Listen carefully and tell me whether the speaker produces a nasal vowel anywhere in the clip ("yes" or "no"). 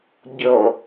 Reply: no